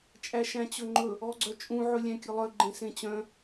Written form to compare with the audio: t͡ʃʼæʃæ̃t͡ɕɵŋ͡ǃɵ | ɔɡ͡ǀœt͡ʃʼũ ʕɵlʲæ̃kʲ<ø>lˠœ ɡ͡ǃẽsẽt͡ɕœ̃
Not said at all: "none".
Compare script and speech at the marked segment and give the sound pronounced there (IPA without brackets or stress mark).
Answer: ɵ